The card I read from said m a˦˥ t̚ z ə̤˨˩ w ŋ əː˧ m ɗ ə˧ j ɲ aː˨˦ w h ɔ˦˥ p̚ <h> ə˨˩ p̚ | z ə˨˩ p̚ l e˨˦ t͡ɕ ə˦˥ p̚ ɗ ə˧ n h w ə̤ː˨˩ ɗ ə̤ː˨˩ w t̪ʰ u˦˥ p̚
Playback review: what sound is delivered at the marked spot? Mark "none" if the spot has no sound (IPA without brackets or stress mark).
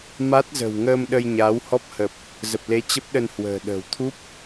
h